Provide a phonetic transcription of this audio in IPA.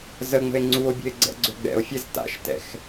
z ə ŋ͡m ə̤ e̯ ŋ͡ǀ u o̯ bʲ ə̤ e̯ ɡ͡ǀ ɛ̰ ɡ͡ǀ ø ɡ͡b ɛ̰ o̯ fʲ ɛ z t a̰ ʃ t ɛ̰ x

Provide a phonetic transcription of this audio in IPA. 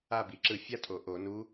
a˦˨ b i˧˩˧ ǁ ɯ˧˩˧ fʲ a˥ tʼ o˩ ʔ o˧˩˧ n u˧˥

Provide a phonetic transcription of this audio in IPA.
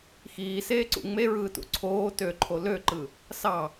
x iː s eː ǀ ṵ ŋ͡m e ɹ ɯː t ṵ ǀʰ oː t ø ǃʰ o l ø ǃ ɯ | s ɑ

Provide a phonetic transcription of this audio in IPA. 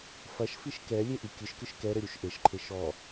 f ɐ ʃ f i ʃ k ɛ lʲ e ʔ i kʲ ɨ ʃ k ɨ ʃ k ɛ ɾ ɘ ɾʲ u ʃ ʔ e ʃ ǃʰ e ʃ ɔ

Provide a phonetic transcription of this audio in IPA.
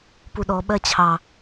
p u ɗ ɔ ɓ ɜ t͡ɕʰ ɑ

